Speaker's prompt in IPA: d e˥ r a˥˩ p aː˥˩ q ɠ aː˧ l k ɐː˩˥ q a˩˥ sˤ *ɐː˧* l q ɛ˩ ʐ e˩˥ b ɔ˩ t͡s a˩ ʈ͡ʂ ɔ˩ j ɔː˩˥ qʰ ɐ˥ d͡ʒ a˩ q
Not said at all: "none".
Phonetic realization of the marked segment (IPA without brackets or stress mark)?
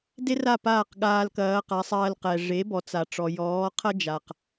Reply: ɐː˧